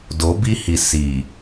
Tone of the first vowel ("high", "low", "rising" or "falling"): rising